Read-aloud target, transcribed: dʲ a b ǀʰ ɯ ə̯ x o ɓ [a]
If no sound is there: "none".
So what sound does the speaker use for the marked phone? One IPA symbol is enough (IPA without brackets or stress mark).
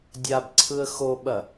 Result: ɐ